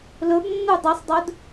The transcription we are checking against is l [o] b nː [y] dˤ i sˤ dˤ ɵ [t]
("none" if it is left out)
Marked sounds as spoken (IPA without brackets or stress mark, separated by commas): ɵ, u, d